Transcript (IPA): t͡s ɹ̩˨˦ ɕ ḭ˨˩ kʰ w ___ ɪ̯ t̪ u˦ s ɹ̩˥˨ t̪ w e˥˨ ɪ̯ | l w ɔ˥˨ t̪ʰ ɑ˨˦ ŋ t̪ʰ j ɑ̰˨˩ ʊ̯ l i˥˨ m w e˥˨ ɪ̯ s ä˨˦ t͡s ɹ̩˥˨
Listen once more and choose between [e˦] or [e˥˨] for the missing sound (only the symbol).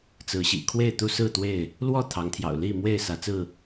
e˥˨